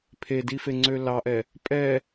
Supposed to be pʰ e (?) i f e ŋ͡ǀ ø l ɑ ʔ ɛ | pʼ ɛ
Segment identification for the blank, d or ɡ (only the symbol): d